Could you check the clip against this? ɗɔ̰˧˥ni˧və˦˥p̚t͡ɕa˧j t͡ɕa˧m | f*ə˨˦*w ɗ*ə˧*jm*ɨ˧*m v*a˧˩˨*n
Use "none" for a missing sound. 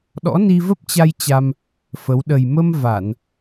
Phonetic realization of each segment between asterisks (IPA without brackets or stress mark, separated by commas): ə˨˦, ə˨˩, ə˧, a˧˩˨